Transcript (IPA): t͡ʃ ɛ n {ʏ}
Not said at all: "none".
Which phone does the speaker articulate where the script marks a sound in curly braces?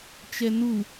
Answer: u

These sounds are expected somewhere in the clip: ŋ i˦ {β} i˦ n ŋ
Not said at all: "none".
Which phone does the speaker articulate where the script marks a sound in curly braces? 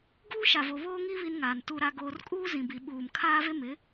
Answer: β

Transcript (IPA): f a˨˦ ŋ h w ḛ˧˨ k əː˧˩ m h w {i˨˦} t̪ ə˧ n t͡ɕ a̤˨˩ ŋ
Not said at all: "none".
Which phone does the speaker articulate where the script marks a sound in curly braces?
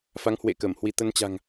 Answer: i˧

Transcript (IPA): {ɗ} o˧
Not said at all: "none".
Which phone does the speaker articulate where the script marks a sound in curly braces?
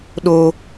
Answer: ɗ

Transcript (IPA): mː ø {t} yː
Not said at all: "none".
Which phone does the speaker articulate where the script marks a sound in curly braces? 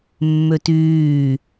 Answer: t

